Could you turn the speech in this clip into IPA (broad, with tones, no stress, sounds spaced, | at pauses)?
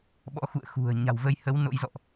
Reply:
ɓ ɔ̰˧˥ x ṵ˧˨ ə̯ x ṳ˨˩ ə̯ ɲ a̤˨˩ w v ə˧ j h ə˨˦ w n o̰˧˥ j z ɔ̰˧˨ ʔ